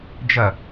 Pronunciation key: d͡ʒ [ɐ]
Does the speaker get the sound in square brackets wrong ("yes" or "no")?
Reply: no